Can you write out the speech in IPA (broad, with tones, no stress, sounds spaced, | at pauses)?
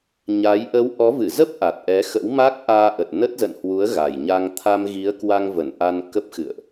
ɲ a˨˦ j ʔ ə˨˦ w ʔ ɔ˨˦ v ɨ˧˩ z ə˦˥ p̚ ʔ a˨˩ t̚ ʔ ɛ˨˦ x ə̰˧˥ w m a˦˥ k̚ ʔ aː˧ ʔ ə˨˩ t̚ n ə˦˥ t̚ z ə̰˧˨ n h w u˨˦ ə̯ ɣ a˨˩ j ɲ a˧ ŋ t̪ʰ a˧ m ɣ i˨˦ ə̯ k w a˧ ŋ v ə˧˩ n ʔ a˧ n k ə˦˥ p̚ x ɨ̰˧˨ ə̯ ʔ